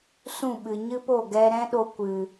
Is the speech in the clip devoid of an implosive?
no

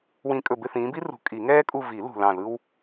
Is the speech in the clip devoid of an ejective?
no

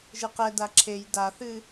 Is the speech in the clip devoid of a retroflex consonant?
yes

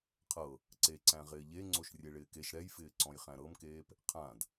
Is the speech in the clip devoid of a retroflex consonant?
no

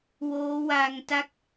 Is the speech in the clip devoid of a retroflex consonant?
yes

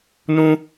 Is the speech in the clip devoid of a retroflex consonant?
yes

